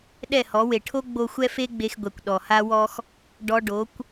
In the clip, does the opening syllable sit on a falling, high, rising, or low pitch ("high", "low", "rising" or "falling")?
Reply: falling